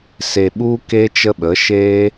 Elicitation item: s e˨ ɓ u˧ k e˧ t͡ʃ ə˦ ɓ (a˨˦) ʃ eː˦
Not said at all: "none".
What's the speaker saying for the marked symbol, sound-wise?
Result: ə˨˦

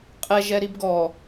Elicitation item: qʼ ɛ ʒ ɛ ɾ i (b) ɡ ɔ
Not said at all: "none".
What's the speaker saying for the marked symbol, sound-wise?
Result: b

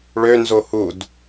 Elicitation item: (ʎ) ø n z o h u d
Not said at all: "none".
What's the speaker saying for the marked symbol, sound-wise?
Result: ɭ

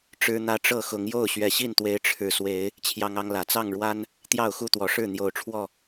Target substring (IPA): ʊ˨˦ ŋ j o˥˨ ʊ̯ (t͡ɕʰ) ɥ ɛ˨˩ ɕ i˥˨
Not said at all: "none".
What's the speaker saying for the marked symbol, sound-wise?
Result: ɕ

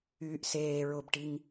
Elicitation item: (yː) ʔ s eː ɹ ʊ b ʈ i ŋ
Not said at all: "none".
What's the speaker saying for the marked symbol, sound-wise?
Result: yː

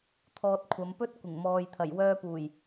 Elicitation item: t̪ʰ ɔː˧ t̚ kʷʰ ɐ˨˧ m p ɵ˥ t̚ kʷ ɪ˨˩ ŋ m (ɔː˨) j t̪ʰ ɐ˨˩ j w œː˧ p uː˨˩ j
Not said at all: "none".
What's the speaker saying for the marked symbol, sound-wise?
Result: ɔː˨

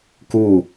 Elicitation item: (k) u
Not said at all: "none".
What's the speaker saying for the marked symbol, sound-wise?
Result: k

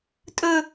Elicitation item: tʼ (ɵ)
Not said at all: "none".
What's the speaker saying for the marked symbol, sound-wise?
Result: ɵ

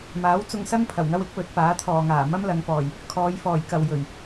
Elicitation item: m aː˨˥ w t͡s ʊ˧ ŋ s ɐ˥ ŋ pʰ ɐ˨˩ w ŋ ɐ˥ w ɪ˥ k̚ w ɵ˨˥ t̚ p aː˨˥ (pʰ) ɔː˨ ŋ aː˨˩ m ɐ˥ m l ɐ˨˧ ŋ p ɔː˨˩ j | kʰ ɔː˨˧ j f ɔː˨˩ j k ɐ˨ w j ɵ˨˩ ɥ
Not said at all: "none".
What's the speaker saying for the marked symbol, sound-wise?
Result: t̪ʰ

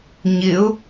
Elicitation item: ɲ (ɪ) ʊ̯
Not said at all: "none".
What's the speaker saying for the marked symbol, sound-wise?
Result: ɪ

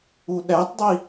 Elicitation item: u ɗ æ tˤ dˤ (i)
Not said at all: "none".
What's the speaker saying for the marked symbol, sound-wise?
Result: i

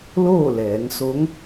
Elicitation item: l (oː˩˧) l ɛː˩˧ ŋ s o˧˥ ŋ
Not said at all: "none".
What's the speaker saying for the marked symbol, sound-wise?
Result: oː˥˨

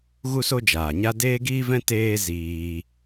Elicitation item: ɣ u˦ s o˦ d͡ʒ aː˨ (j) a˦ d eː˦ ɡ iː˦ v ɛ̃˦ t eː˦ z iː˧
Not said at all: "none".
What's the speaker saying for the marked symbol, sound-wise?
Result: ɲ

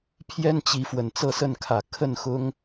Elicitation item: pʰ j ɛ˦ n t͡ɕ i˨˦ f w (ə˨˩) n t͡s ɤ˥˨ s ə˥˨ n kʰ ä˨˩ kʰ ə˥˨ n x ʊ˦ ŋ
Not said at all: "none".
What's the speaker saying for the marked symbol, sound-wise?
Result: ə˨˩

